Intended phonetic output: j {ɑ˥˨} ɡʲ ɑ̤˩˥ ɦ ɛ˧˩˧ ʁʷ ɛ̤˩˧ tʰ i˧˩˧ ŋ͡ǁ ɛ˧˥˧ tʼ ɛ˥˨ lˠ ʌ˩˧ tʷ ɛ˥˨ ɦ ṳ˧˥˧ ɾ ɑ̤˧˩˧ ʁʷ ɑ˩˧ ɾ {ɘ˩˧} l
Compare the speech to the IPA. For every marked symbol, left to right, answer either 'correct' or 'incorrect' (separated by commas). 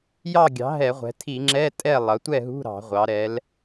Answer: correct, incorrect